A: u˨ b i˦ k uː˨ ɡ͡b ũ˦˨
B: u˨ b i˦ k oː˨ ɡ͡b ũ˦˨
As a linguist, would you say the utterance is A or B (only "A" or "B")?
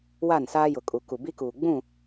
A